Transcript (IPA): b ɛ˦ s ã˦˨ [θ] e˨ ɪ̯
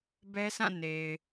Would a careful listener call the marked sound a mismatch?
yes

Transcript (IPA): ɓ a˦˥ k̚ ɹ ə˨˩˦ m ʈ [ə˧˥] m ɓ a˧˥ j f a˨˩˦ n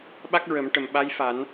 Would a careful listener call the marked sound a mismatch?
yes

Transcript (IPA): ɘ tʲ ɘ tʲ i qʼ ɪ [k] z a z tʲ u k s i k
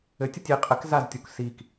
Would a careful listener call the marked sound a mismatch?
no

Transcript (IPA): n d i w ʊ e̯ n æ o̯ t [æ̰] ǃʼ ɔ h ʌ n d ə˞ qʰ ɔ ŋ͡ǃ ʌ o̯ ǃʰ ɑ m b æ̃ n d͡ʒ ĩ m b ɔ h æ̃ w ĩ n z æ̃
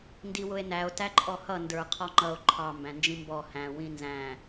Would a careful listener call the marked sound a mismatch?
yes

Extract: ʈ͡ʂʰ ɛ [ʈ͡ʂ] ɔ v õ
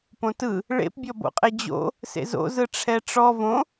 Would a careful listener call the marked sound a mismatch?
no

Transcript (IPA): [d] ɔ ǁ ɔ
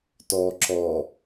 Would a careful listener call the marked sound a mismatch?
yes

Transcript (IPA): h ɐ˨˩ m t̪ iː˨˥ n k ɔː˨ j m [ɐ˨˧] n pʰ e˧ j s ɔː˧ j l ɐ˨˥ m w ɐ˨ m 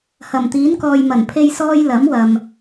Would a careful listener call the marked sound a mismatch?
yes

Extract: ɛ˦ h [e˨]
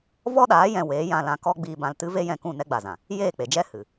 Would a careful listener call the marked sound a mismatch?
yes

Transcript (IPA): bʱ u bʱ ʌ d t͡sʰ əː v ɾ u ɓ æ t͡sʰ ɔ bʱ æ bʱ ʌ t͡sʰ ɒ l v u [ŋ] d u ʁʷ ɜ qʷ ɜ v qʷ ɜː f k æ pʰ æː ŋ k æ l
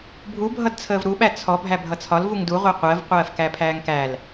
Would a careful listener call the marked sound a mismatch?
no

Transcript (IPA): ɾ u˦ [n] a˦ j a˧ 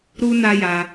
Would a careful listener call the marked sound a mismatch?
no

